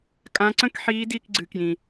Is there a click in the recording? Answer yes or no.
yes